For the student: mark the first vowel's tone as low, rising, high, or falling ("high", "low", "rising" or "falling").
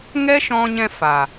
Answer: high